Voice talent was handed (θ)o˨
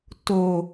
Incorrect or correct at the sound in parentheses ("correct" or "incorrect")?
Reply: incorrect